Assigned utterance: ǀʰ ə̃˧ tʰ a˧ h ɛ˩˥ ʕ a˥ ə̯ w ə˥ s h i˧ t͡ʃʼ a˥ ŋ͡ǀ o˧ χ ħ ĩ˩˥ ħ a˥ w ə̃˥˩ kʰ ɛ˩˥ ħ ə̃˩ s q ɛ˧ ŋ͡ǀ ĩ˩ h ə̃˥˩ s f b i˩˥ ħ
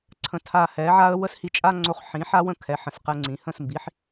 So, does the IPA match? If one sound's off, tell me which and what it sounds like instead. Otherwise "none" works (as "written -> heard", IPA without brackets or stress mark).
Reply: f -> m